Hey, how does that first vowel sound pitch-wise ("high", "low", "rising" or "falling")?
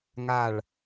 falling